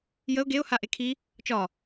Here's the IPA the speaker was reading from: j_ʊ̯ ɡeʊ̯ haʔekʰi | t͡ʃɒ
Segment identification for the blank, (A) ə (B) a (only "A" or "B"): A